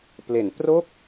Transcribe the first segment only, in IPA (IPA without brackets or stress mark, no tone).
p